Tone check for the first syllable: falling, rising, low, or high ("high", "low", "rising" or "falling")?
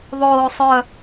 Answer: low